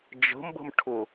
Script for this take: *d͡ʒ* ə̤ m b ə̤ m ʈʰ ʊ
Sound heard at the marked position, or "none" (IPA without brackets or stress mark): d͡ʒ